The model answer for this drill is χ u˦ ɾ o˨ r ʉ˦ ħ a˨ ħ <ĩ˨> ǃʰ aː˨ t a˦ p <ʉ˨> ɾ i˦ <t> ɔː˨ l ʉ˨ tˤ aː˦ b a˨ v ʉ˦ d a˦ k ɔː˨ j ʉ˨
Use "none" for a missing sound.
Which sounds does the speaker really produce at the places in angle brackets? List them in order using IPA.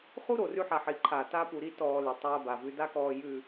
i˨, u˨, t

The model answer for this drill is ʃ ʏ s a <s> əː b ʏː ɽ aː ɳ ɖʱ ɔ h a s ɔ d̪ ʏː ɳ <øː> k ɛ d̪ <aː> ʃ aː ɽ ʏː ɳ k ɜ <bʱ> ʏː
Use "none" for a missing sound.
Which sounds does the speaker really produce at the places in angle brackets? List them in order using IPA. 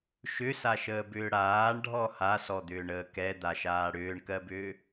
ʃ, əː, a, b

